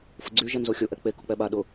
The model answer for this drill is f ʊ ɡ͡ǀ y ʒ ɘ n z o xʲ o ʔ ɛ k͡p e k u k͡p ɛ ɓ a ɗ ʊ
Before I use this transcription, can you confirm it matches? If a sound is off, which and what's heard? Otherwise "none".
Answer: ɘ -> ɛ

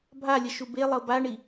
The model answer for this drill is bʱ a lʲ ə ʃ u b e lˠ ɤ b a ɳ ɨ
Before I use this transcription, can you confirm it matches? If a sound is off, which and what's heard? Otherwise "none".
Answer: ɨ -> i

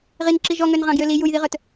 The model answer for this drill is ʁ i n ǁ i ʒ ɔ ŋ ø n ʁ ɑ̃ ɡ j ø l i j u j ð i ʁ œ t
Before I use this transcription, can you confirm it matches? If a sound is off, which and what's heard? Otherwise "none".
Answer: none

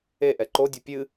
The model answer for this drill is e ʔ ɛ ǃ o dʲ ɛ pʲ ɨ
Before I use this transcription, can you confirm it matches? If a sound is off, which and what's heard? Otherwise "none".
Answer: none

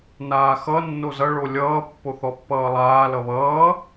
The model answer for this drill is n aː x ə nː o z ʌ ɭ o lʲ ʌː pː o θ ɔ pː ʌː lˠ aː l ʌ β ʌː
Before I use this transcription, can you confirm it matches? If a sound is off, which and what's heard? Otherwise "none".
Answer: ə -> ʌ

